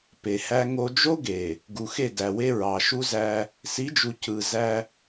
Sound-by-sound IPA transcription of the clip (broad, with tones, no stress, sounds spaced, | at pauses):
p e˨ h æ˦ ŋ o˦ d͡ʒ o˦ ɡ e˨ | ɡ u˨ x e˦˨ d æ˨ w e˦ ɹ ɑ˨ ʃ u˦ z æ˦ | s i˨˦ d͡ʒ u˨ cʰ ɯ˨ z æ˦